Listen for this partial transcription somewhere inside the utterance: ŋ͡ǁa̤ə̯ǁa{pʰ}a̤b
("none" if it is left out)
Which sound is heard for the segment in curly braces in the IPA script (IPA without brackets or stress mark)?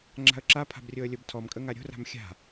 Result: pʰ